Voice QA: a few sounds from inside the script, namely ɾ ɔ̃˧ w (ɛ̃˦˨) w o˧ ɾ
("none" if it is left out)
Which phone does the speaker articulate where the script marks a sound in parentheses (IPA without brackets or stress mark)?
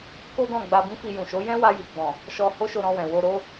ɛ̃˨